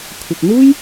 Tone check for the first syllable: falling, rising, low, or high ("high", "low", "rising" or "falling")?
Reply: low